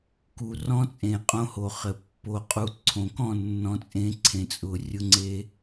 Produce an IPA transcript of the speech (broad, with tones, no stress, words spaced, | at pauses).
ku˨rɔ̃˦t͡sʼẽ˨ qʼõ˦ho˨χɘ˨ pːo˨qʼu˨ ǀʰõ˨ kɔ̃˦˨nːɔ̃˨˦t͡sʼẽ˨˦ ǀʰẽ˨t͡sʼʊ˨rʲʊ˦ŋ͡ǀe˦